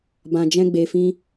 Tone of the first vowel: low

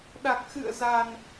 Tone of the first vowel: low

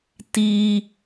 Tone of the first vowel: high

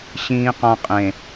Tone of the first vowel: low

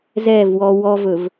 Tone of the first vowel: falling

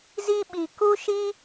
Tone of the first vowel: high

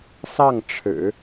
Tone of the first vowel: falling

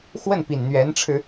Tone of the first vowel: falling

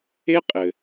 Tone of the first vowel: high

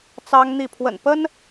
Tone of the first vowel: high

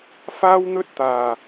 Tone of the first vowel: high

